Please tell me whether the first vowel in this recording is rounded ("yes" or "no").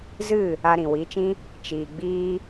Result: no